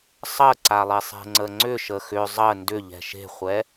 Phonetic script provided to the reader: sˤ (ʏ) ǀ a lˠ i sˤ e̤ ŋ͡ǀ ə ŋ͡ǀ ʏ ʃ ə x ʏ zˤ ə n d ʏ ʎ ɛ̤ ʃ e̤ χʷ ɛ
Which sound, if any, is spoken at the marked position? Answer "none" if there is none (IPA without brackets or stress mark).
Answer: ə